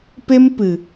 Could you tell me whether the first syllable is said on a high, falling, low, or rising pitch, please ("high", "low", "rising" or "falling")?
high